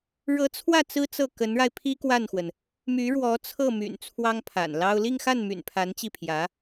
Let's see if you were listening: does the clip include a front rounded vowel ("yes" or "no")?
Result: yes